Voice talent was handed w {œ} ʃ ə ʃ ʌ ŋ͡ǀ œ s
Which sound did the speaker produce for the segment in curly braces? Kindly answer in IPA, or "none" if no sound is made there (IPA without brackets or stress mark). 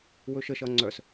ɵ